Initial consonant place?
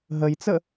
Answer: glottal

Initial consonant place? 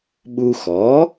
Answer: labial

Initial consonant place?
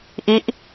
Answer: glottal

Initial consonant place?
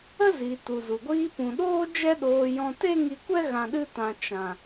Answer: alveolar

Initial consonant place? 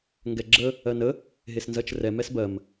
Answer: velar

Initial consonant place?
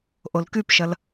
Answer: glottal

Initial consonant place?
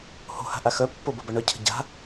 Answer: glottal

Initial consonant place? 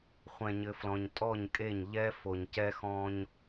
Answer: uvular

